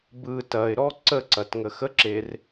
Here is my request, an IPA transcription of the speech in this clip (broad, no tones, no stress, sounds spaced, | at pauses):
b ɯ t ɐ ɪ̯ ɾ ɔ ǀ ə ǀ ɐ t ŋ ə x ə ǁ e r